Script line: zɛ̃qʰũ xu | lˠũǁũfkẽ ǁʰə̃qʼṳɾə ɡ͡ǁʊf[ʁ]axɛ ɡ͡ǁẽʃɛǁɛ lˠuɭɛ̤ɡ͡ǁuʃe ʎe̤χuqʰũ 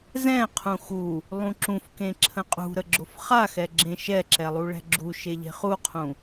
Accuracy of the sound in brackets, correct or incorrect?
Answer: incorrect